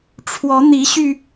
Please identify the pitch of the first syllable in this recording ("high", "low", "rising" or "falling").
rising